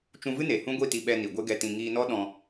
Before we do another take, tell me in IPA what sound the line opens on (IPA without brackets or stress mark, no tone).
t͡ʃ